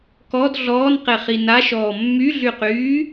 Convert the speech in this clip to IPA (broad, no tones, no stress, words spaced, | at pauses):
kɔd ɮɔːnqeχi naʃɔː mːyɮyqyː